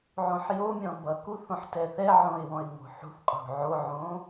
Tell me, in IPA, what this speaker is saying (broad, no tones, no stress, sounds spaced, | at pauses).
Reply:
ʕ õ ħ j o mʲ ɔ̃ b ʌ k u θ õ ħ t ɛ θ ɛ ʕ õ ɪ̯ w ɔ̃ ɪ̯ ŋ o̤ ħ ṳ θ qʼ o̤ ʕ o ʕ õ